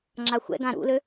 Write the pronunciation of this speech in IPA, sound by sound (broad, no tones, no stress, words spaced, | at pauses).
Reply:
ŋ͡ǁaxʷɛ̰ɡã ɾṵlø